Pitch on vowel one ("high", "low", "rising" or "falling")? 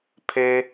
high